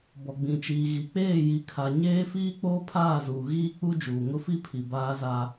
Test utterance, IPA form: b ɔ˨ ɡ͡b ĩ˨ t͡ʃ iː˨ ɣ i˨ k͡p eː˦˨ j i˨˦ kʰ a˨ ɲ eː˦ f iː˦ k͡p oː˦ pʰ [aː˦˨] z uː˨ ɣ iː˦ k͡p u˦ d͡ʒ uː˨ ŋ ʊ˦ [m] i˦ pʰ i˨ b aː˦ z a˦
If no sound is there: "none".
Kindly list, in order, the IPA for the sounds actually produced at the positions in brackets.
aː˦˨, f

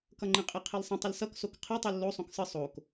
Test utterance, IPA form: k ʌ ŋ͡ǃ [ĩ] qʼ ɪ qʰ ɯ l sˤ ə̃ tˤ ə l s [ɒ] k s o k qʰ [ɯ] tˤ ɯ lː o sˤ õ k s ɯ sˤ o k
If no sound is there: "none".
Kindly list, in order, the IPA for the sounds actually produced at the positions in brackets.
ĩ, ʌ, ɯ

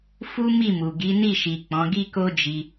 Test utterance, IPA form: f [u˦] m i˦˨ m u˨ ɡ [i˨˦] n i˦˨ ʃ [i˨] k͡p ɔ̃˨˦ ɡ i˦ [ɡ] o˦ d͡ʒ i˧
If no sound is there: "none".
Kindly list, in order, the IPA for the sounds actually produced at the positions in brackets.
u˦, i˨˦, i˨, k

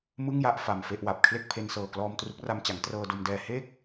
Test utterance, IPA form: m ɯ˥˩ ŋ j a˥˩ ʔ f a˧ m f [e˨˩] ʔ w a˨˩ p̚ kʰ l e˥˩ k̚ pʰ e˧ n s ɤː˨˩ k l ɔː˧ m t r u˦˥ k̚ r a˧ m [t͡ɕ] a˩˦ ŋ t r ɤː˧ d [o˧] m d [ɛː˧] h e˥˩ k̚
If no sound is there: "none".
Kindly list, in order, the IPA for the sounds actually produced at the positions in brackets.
e˥˩, t͡ɕ, o˧, ɛː˧

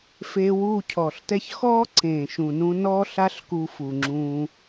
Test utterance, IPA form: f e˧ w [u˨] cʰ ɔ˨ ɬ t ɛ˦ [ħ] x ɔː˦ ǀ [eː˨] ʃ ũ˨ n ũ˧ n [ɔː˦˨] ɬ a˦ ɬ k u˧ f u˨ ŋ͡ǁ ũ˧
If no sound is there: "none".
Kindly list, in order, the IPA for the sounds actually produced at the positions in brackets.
u˦˨, ç, ẽː˨, ɔː˦

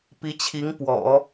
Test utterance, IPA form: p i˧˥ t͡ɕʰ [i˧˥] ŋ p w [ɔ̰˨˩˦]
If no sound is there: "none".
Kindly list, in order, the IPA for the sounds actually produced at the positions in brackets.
i˧˥, ɔ̰˨˩˦

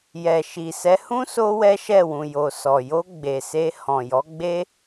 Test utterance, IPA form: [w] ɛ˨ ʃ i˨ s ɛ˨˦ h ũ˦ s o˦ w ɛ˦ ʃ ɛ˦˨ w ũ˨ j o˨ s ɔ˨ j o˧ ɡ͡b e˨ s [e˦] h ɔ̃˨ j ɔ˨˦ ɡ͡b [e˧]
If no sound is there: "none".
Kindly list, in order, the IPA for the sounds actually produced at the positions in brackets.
j, e˧, e˦

